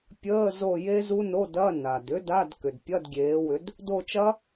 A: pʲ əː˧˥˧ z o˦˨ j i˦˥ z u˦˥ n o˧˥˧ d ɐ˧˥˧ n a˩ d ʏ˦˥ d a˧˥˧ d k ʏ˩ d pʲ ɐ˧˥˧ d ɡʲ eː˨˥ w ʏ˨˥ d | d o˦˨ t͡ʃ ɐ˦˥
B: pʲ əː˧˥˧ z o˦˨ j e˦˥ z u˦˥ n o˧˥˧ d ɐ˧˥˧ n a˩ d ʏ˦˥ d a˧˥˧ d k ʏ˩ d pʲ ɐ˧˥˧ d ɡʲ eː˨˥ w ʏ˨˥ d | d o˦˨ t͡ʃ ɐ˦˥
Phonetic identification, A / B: B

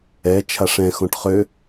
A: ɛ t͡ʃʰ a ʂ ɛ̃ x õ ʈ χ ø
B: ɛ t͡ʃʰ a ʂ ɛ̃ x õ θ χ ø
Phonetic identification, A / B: A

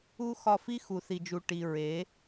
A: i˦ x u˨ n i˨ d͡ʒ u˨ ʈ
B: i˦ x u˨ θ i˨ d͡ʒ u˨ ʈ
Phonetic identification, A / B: B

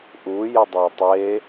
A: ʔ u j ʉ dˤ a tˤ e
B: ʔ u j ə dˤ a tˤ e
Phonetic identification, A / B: B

